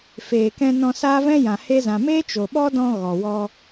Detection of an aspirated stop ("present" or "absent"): absent